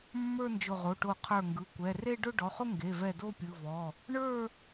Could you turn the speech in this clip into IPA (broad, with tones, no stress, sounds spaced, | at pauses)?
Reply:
mː ə˞˥˧ n d͡ʒ ʊ˧˩ ʁ o˩˧˩ ʈ o˧˩ qʰ ə˞˧˩ ŋ ɡ ɯ˩˧˩ kʷ ɛ˩˧˩ r e˥˧ ɖ ʊ˥˧ ɖ ɔ˩˧˩ χ ʊ˥˧ ŋ ɡ e˩˧˩ v ɛ˧˩ d o˥˧ pʲ ɯ˩˧˩ v ɔ˩˧˩ | ɳ ə˞˥˧